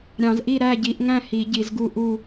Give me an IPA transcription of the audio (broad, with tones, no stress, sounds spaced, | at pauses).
ɾʲ ɑ̃˨˩˦ z ʔ i˥˨ ɾ æ˥˨ ɟ i˨˩˦ ʔ ŋ æ̃˥˨ h i˨˩˦ ɟ i˨˩˦ z ɡ u˥˨ ʔ u˥˨